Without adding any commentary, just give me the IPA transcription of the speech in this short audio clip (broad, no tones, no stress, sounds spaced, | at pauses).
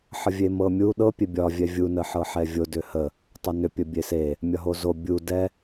ħ ə vʲ e m ɤ mʲ u ɗ ɤ pʲ e bʲ ɒ vʲ ɛ vʲ u n ə ħ ɤ ħ ɛ vʲ o d ʏ h ə | tˤ o n ʏ pʲ ə bʲ e s e | mʲ ɒ ɦ o z o bʲ u d ɛ